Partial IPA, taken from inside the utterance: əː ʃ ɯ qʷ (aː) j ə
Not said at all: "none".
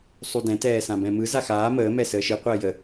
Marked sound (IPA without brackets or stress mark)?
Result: əː